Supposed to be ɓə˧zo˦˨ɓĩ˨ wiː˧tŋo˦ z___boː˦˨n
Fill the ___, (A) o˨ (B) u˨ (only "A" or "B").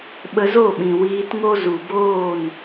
B